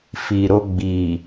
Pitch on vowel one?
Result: low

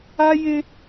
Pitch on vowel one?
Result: high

